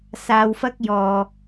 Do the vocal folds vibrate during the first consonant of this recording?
no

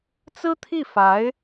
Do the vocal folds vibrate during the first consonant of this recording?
no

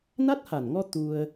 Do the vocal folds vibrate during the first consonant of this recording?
yes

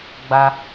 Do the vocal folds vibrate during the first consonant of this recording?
yes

